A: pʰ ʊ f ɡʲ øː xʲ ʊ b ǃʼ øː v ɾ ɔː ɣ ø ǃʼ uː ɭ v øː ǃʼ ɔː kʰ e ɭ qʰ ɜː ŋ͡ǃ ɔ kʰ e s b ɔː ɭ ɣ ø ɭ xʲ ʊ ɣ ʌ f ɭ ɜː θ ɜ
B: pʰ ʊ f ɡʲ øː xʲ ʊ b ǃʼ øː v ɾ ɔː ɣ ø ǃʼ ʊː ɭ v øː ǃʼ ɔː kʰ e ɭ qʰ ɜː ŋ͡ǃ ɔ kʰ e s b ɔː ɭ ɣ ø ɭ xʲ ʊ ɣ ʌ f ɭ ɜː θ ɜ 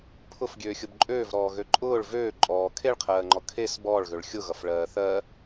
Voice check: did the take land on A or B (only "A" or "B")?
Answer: B